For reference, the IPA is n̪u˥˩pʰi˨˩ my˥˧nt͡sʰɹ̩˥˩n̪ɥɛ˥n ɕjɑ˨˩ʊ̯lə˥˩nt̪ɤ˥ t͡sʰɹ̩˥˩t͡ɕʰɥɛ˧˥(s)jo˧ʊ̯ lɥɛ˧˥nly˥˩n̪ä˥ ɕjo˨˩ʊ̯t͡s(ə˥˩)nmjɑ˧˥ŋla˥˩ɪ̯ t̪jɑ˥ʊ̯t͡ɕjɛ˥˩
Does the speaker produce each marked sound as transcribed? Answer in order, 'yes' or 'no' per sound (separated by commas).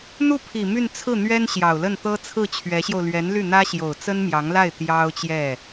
no, no